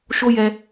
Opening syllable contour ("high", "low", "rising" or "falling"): high